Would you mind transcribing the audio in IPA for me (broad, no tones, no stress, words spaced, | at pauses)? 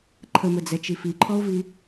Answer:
ǃʰəməd͡zɛt͡ʃi fiǃʰɔo̯vi